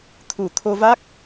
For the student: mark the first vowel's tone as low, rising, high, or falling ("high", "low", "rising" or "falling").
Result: low